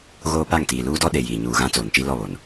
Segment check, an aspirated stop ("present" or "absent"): absent